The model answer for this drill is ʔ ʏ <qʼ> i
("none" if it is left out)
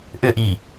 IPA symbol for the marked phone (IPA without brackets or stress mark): ʔ